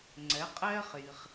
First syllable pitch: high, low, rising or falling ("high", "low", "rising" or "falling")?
rising